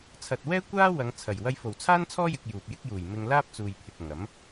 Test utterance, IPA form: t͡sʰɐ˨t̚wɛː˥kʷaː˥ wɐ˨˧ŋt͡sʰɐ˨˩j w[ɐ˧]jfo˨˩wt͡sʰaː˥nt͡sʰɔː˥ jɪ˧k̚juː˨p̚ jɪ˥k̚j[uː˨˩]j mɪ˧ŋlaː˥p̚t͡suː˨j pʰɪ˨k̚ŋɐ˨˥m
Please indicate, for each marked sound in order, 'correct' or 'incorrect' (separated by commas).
correct, correct